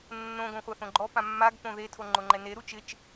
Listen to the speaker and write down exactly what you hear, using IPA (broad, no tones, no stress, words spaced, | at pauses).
nːõ ɡõχʷaθõɡ͡ǃɔ pãmːaɡ põðe tʰoŋ͡ǃʊŋ͡ǃɛne ɾut͡ʃɪt͡ʃ